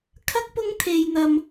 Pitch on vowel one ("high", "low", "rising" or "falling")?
high